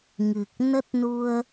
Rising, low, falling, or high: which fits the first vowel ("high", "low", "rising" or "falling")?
low